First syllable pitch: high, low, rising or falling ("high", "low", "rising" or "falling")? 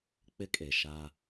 high